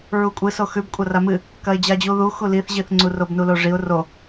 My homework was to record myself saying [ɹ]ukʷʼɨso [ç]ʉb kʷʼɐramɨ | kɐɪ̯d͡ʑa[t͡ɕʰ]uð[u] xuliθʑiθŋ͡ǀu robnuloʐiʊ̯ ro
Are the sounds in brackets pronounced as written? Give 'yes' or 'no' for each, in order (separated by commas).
yes, no, no, yes